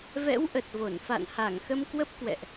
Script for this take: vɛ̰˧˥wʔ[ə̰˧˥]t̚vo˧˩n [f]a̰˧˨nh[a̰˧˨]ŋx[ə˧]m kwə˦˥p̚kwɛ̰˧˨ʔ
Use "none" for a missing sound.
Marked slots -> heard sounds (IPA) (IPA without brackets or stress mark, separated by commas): ə˨˩, f, a˧˩, ə˧